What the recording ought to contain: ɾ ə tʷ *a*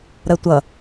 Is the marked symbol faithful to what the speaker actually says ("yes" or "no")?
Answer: no